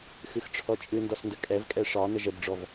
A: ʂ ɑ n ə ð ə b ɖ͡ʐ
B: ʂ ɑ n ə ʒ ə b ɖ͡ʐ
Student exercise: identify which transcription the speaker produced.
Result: B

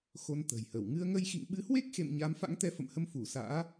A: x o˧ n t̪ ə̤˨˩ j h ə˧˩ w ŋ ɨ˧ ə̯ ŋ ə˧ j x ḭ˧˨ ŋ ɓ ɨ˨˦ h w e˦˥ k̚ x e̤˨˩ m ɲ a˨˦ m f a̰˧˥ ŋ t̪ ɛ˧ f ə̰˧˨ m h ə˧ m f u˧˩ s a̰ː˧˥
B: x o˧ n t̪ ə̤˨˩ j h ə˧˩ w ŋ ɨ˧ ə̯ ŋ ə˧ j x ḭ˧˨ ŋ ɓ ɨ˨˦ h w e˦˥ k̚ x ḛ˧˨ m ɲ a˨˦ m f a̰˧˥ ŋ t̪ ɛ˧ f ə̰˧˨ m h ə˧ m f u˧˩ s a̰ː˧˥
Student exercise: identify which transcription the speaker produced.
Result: B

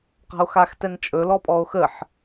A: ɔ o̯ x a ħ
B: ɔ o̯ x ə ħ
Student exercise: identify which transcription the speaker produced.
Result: B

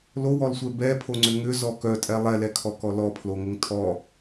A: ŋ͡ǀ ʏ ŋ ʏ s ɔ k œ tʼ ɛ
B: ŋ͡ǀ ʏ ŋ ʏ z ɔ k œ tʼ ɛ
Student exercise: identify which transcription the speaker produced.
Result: B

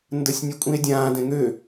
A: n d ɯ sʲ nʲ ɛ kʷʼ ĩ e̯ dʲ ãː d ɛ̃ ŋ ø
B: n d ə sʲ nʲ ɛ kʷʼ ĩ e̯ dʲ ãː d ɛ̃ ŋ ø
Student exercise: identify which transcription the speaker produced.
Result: B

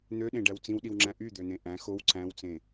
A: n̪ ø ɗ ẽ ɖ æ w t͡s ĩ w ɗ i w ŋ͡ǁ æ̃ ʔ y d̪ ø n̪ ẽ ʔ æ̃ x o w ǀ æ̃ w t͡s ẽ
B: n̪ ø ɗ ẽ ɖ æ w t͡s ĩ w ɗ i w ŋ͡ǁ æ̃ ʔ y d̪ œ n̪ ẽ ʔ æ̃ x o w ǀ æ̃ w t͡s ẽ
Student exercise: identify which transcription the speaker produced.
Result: A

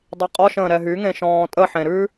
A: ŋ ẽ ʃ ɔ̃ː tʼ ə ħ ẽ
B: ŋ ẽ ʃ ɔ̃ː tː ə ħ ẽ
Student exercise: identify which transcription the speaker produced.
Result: A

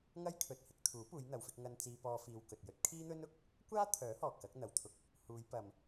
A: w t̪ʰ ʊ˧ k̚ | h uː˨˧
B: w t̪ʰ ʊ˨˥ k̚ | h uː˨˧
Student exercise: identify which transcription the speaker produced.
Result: A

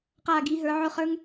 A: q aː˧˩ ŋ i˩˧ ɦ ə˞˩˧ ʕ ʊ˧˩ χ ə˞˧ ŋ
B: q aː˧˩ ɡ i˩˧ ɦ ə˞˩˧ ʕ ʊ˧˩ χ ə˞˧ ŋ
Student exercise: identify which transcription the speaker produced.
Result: B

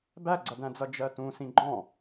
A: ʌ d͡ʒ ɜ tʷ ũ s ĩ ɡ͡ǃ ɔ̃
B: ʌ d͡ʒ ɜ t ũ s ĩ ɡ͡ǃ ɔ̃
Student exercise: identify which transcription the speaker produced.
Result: B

